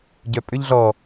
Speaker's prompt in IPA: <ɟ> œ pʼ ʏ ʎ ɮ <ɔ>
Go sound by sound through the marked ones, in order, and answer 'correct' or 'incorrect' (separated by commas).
correct, correct